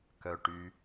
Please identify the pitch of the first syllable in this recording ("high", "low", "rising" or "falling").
low